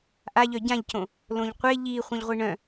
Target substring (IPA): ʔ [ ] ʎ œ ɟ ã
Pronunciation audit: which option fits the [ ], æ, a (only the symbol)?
a